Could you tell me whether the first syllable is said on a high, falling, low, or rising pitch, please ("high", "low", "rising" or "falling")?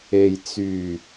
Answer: low